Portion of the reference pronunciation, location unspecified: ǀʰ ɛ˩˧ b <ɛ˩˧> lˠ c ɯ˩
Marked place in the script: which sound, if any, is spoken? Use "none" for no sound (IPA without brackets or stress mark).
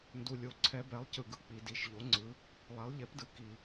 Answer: ɛ˩˧